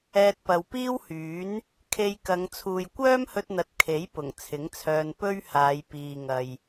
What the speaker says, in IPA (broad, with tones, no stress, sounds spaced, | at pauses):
ɛː˧ t̚ p ɐ˨ w p iː˥ w h yː˨˥ n | kʰ e˧ j k ɐ˨˧ ŋ t͡sʰ uː˨ j kʷ œː˥ m h ɵ˧ t̚ n̪ ɐ˨ t̚ kʰ e˨˥ j p ʊ˨˩ ŋ t͡sʰ ɪ˨˥ ŋ t͡sʰ œː˧ n p ɵ˥ ɥ h aː˨˧ j p iː˨ ŋ ɐ˨ j